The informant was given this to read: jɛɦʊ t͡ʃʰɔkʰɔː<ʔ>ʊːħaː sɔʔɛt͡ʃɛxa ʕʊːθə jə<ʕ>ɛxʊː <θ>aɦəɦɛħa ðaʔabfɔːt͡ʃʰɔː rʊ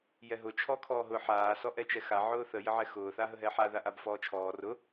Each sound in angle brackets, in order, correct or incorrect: incorrect: ɦ, correct, correct

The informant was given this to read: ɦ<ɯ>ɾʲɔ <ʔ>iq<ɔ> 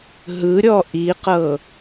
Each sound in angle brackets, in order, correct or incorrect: correct, correct, incorrect: ɤ

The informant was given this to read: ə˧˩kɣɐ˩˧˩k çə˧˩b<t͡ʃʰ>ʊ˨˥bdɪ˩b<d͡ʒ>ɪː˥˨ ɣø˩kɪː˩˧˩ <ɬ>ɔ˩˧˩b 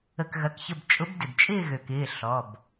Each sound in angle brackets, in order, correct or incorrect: incorrect: t͡ʃʼ, incorrect: t͡ʃʼ, correct

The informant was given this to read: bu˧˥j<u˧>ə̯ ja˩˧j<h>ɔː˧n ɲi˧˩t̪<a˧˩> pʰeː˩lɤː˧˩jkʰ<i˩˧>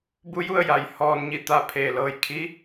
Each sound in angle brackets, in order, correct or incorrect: incorrect: u˥˨, correct, correct, incorrect: i˧˥

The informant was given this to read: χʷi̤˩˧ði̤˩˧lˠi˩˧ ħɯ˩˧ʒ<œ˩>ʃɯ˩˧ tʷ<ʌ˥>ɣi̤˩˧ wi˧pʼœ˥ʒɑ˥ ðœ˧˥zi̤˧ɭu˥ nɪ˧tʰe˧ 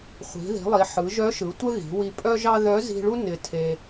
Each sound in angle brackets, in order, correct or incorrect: incorrect: œ˧˥, incorrect: ə˥

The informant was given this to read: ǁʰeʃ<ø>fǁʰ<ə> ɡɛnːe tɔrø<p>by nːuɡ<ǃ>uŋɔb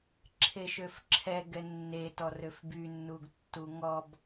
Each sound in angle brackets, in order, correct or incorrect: correct, incorrect: ɛ, incorrect: f, incorrect: tː

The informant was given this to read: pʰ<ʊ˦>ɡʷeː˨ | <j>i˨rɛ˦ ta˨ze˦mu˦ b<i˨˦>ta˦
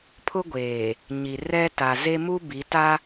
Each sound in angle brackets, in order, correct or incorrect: correct, incorrect: ɲ, correct

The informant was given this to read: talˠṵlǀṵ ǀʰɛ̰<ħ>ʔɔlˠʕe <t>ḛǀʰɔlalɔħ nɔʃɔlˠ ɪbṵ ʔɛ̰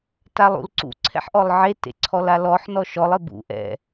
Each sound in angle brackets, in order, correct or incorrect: correct, correct

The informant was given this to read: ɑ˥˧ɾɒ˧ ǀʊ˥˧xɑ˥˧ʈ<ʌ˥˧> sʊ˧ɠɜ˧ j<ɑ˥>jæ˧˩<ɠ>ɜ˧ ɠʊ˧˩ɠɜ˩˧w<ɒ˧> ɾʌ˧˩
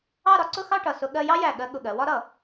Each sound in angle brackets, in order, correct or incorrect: incorrect: ʌ˧˩, correct, correct, incorrect: ɒ˥

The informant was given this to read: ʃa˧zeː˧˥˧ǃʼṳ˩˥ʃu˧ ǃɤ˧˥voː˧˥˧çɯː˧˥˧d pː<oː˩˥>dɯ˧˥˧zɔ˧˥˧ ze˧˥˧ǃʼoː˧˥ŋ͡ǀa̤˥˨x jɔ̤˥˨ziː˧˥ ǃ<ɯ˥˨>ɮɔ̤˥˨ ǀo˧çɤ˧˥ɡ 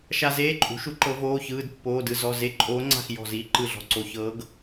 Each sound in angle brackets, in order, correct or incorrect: incorrect: oː˧˥˧, correct

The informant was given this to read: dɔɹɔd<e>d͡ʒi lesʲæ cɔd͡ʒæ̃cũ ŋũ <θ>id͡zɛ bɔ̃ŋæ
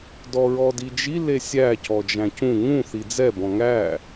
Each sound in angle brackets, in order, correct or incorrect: incorrect: i, correct

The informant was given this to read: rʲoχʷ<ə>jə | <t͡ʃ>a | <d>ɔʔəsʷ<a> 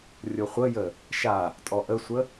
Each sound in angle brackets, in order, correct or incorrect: correct, incorrect: ʃ, incorrect: tʼ, incorrect: ə

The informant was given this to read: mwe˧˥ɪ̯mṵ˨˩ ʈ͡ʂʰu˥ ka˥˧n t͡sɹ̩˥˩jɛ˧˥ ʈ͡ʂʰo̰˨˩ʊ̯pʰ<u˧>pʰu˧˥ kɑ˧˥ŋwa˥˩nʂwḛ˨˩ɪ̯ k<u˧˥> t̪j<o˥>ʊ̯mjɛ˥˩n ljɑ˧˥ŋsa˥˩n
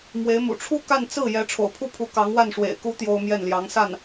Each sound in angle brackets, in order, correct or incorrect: incorrect: u˥˩, correct, correct

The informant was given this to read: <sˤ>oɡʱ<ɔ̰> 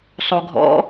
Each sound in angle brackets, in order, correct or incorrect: correct, correct

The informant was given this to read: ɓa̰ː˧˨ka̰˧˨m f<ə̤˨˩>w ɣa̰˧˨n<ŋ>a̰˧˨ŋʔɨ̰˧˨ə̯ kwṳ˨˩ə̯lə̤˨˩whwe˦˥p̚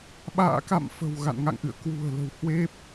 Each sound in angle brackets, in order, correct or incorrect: correct, correct

